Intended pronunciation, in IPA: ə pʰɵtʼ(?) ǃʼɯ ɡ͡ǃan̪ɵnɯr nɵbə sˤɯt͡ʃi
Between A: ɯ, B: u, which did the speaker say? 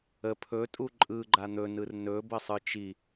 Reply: B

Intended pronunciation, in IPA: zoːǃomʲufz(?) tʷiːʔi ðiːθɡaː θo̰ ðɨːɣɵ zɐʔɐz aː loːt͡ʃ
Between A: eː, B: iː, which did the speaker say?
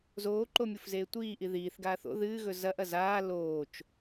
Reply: A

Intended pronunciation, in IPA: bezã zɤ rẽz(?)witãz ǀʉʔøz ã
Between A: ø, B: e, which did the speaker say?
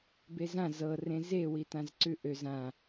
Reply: B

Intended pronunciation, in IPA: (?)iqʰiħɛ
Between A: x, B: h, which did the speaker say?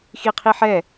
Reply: A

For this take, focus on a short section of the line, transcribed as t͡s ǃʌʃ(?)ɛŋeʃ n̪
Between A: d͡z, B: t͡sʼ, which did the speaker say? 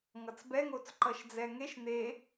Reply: A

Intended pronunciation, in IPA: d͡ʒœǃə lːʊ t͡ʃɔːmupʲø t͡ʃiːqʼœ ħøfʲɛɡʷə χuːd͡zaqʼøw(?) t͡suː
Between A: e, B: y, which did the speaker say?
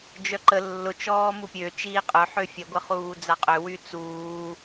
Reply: B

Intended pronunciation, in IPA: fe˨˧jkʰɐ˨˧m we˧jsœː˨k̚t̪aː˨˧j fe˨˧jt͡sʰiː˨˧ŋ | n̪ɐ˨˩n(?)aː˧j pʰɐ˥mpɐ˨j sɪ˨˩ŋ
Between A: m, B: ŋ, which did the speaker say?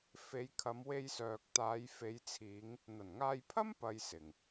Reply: B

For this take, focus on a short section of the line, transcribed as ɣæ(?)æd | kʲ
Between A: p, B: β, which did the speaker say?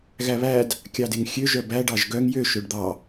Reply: B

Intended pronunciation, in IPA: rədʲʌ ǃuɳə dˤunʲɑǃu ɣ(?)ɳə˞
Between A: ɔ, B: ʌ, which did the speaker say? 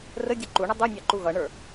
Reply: B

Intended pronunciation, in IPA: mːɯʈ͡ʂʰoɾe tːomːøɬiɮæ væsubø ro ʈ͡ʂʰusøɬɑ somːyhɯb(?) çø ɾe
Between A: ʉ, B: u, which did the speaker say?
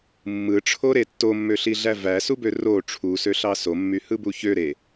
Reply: B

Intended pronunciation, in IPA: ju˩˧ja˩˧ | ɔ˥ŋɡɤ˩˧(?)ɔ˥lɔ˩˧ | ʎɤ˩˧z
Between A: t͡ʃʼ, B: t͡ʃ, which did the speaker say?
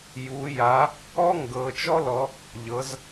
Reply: B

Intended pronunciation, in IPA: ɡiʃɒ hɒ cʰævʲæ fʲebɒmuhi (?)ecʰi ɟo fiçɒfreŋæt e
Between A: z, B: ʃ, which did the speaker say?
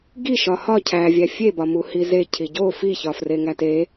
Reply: A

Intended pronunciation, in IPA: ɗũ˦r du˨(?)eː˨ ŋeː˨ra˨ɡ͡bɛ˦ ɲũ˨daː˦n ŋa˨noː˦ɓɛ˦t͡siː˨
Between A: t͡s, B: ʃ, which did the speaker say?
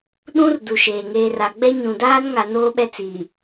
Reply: B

